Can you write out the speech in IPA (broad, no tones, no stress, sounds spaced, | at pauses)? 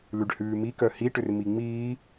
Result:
l ʉ ɖ h ʉː m i k œ h i ʈ ʏ r m i ŋ͡m iː